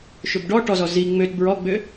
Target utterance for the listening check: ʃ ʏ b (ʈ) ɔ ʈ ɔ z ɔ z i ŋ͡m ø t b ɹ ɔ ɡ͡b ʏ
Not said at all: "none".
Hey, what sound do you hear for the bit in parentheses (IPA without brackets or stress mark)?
ɖ